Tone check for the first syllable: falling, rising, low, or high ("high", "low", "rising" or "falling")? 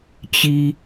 high